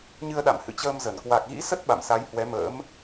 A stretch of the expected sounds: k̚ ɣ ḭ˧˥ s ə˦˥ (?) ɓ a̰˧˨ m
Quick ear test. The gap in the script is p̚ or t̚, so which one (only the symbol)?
t̚